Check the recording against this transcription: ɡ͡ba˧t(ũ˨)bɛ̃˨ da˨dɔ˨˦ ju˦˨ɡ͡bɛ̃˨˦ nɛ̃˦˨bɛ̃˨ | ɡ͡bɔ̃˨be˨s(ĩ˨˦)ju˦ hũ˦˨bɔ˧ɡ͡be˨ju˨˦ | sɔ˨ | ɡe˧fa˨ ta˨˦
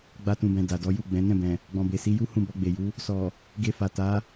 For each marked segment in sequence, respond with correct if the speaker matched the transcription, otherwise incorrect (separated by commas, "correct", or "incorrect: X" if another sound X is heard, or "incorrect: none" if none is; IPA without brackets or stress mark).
correct, incorrect: i˨˦